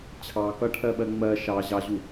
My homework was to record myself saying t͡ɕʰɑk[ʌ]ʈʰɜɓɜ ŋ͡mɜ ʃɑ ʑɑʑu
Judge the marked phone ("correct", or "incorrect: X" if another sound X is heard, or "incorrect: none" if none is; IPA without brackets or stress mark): correct